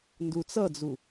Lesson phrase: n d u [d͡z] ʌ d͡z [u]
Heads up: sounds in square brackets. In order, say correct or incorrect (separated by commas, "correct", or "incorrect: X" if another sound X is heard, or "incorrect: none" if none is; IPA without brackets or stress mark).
incorrect: t͡s, correct